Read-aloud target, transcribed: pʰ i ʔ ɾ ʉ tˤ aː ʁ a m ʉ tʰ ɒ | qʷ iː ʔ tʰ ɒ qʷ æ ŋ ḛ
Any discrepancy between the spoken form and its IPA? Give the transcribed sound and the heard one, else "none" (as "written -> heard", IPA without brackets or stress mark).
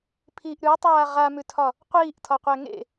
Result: none